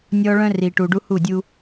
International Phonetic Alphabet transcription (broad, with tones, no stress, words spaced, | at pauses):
nʲɔ˦ ɭœ̃˦ri˨ʈu˨ɖu˦ hu˦˨dʲu˦